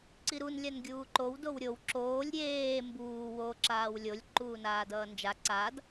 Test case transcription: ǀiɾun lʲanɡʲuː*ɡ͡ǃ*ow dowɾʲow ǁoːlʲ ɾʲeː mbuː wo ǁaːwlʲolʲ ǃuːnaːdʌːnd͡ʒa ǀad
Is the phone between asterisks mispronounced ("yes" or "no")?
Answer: yes